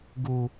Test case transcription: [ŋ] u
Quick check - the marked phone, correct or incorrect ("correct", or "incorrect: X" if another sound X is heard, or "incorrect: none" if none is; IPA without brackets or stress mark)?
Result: incorrect: ɡ